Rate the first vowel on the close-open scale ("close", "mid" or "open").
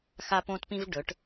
open